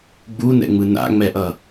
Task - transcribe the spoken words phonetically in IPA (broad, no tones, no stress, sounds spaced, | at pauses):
ɡ͡b u n ɛ̰ ŋ͡m ɯ n a̰ ŋ͡m ɛ ʔ ʌ